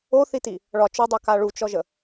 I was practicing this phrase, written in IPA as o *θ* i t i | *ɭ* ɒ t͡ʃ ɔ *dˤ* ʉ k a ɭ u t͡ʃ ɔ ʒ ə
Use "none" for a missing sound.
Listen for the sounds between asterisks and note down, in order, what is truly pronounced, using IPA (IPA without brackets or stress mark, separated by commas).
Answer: θ, ɭ, dˤ